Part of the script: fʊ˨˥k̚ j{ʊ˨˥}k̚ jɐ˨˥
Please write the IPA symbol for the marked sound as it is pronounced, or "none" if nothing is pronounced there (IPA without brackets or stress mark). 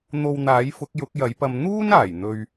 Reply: ʊ˨˥